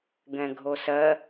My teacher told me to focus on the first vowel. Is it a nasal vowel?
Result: yes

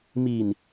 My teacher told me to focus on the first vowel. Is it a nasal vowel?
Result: no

